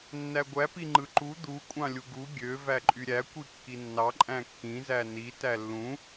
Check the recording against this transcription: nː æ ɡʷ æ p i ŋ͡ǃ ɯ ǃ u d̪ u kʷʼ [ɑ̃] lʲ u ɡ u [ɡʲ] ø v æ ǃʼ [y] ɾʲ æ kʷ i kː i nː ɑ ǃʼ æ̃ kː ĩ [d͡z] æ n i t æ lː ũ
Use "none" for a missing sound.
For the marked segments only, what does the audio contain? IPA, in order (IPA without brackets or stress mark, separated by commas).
ɑ̃, ɡʲ, y, z